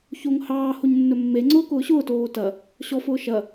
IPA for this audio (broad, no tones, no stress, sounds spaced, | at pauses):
ç o ŋ h ɑː h o ɲ nː ɵ mː e ŋ͡ǀ ʊː k ʊː ɕ ʊː t oː t ɐ | ɕ ɔ f ʊː ʃ ɐ